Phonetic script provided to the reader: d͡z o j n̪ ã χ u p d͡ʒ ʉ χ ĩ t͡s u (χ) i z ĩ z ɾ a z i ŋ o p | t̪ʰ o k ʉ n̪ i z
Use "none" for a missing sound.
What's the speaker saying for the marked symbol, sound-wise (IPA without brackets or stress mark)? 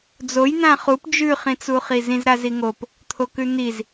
χ